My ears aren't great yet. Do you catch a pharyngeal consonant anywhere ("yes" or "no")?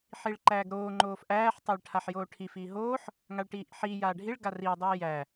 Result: yes